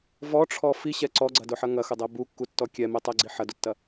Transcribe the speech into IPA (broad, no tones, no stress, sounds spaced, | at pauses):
v ɔ ʈ͡ʂʰ ɔ f i ɕ ɛ ǀ ɔ ɡ͡ǀ ɐ d ʊ ħ ɐ ŋ ɐ x ʊ dˤ ɛ b u kː u tː ɔ kʲ ɛ m e tˤ ɛ ɡ͡ǀ i ħ ɐ d ʊ tː ɐ